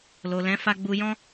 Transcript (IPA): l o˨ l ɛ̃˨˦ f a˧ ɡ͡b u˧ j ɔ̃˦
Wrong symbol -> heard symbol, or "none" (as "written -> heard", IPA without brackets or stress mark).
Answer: none